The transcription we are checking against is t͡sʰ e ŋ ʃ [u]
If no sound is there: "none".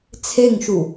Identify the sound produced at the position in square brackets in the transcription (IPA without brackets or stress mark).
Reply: u